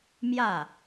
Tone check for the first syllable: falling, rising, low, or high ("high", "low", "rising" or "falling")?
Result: falling